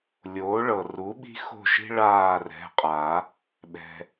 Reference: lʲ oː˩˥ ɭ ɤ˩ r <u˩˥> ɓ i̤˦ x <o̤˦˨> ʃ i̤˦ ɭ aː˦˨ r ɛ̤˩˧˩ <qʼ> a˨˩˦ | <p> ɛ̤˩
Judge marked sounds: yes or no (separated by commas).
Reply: yes, yes, yes, no